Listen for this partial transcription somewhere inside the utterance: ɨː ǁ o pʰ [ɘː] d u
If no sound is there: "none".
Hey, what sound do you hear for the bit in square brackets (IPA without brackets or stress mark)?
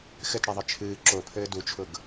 ɘː